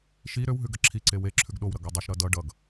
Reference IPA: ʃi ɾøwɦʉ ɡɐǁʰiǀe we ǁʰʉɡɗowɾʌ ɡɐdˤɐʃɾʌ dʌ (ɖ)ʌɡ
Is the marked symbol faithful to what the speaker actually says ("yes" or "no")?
yes